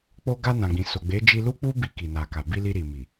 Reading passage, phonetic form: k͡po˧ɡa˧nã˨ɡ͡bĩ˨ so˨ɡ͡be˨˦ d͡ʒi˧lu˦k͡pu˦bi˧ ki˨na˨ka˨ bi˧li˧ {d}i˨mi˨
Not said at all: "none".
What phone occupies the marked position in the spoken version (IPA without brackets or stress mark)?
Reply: ɾ